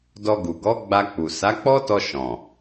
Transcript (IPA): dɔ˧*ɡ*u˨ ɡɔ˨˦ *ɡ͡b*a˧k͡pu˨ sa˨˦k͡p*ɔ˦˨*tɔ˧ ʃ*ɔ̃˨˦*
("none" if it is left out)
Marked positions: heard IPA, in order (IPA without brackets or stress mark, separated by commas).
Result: ɡ, ɡ͡b, ɔ˦, ɔ̃˨